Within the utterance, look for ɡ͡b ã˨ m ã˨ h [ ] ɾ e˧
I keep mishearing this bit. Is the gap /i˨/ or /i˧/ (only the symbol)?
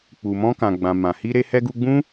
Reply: i˧